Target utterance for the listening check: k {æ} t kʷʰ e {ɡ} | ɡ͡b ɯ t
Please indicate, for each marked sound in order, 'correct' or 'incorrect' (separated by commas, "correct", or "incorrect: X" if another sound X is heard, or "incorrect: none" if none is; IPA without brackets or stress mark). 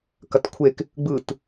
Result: incorrect: ɐ, incorrect: k